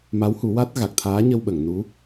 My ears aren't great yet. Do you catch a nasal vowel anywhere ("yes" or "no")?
no